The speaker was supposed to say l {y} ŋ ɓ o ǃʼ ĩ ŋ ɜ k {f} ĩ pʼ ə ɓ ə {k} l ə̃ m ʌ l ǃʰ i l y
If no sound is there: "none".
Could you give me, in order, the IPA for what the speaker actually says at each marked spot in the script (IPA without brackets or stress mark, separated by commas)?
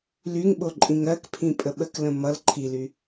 y, pʰ, k